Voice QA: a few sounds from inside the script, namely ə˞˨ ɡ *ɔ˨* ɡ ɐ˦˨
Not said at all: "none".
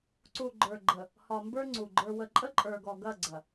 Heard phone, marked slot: ɔ˨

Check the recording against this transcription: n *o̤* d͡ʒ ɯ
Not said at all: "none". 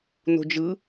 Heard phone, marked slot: o̤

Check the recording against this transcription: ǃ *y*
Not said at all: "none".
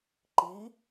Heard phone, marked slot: i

